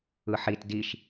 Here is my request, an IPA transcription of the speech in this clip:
ɯ ħ i t d i ʃ

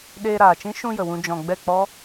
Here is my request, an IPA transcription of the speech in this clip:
ɗ eː˧ ɾ aː˨ t͡ʃ ĩ˦ ʃ ũ˧ j ə˨ w ũ˧ d͡ʒ ɔ̃˨ ɡ͡b ɛ˦˨ k͡p ɔ˦

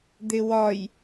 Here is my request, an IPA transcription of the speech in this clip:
d̪ ɪ w ɒ j

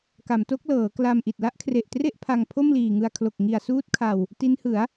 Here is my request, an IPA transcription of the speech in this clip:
k a˩˦ m t o˦˥ k̚ l ɤː˩˦ k l a˧ m ʔ i˨˩ t̚ l a˦˥ ʔ kʰ r e˨˩ ʔ t r e˥˩ ʔ pʰ a˧ ŋ pʰ o˥˩ m l iː˨˩ ŋ ɯ˧ a̯ kʰ l o˨˩ k̚ ŋ i˨˩ a̯ s uː˦˥ t̚ kʰ a˨˩ w | t i˦˥ n h ɯ˩˦ a̯

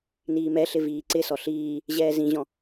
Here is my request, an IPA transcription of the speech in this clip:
n iː m ɛ ɬ ɪ v iː ǀ ɪ s ɔ ɬ iː | ʑ ɛː z ĩ ʑ ɔ̃

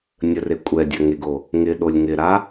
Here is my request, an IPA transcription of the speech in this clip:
nʲ ə r e kʷʼ ɛ dʲ ɐ ŋ e ɡ o | ŋ ɪ ɗ o lʲ ŋ ɪ ɾ a

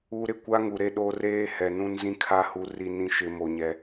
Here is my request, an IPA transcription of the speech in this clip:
u˦ ɾ ɪ˦ kʷ a˦ ŋ u˨ ɾ e˦ ɗ o˦ r eː˦ h ɛ˨ n ũ˦ n z ĩ˦ kʰ a˦ h u˦ r i˦ n ĩ˦ ʃ ɪ˦ m o˦ ɲ ɛ˦

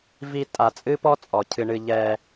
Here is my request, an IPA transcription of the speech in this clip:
v i˦ tʼ a˨ t͡sʼ ɨ˥ p ɔ˥ t͡sʼ ɔ˩ cʰ ɨ˨ ɳ ɨ˨ ʎ ɛ˨

